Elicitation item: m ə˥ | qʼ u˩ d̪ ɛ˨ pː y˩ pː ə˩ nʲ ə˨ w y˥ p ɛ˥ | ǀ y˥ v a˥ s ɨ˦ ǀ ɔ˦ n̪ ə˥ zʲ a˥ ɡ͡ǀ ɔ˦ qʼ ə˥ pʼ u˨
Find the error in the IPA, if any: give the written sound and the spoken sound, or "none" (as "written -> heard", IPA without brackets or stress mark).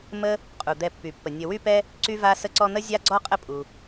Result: ɨ˦ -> ə˦